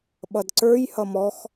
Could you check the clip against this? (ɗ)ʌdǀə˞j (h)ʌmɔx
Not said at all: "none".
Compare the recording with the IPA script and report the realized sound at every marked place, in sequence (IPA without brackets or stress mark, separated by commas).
ɓ, h